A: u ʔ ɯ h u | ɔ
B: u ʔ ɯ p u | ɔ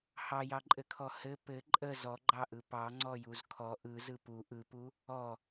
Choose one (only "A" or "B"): B